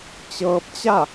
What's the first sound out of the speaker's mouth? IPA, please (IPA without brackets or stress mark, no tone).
t͡ɕ